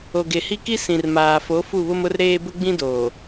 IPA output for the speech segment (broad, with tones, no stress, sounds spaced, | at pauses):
o˨ ɡ e˨ h i˦ k i˦ s ĩ˨ r m aː˨ f o˨˦ f u˦˨ β ʊ˦ m ʊ˦ r ɾ eː˦ b ʊ˦ ɡ͡b ĩ˦ d oː˨